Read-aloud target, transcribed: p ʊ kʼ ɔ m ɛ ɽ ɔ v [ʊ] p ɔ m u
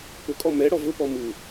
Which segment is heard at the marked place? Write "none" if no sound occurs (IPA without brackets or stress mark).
ʊ